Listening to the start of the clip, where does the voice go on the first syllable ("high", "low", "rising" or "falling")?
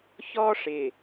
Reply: high